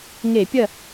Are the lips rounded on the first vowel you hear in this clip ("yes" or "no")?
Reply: no